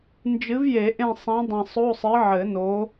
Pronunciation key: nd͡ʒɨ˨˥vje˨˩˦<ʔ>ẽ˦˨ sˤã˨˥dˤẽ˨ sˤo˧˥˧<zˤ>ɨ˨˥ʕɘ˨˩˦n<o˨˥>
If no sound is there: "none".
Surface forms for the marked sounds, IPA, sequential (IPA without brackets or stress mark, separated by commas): ʔ, sˤ, o˨˥